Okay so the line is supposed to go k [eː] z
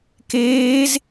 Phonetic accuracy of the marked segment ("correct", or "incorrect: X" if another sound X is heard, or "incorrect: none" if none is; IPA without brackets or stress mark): correct